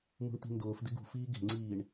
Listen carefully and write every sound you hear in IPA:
m ṳ ɳ t̪ i̤ n d ʊː f d ɪ ɡ ṳ f iː ɡ e̤ ŋ͡ǀ iː ɳ

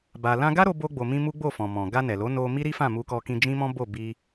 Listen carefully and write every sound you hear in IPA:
b a˧ l ã˧ ɡ a˦ ɾ o˧ b o˧ ɡ͡b o˨ m ĩ˧ m u˦ ɡ͡b o˦˨ f ɔ̃˨ m ɔ̃˨ ɡ a˧ n ɛ˨ l o˨˦ n o˧ m i˦ ɾ i˦ f ã˦˨ m u˧ k ɔ˧ k ĩ˧ d͡ʒ ĩ˦ m ɔ̃˦ b o˦˨ b i˧

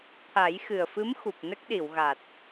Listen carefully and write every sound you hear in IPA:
t̪ʰ a˨˩˦ j x ɨ˨˩ ə̯ f ɨ˧˥ m x u˨˩ p̚ n ə˦˥ k̚ ɗ i˨˩˨ w ɣ a˨˩ t̚

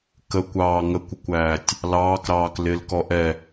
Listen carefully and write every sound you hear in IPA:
k ə kʷ ɑː ŋ ə kʷ ʊ kʷ æː tʲ | l ɑː k ɾ ɑː k l ɪ l k ɔ ʔ ɛ

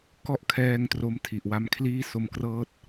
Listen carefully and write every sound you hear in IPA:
k ɔ˥˩ ʔ kʰ ɛː˧ ŋ t r o˦˥ m tʰ i˨˩ ʔ w a˧ m kʰ l iː˥˩ s o˧ m k r ɤː˥˩ t̚

